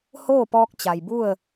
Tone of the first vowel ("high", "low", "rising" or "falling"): falling